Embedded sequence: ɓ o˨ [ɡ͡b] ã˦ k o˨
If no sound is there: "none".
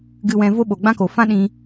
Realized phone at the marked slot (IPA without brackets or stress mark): ɡ͡b